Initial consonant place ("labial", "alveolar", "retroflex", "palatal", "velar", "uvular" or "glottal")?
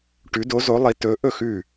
retroflex